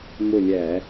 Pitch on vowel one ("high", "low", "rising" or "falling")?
falling